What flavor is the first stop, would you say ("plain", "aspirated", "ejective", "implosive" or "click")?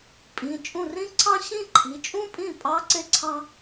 ejective